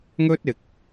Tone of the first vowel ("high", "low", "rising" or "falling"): high